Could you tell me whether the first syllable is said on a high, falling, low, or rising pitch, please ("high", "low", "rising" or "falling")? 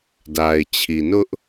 low